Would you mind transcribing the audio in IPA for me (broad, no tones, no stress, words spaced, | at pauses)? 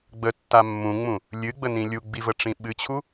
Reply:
ɡ͡bətːa mːũŋ͡mũ | lʲɨɡ͡bənĩ lʲuɡ͡bivəʈ͡ʂĩ ɓɨt͡ɕʰu